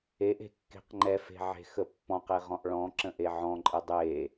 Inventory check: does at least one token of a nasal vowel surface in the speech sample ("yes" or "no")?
yes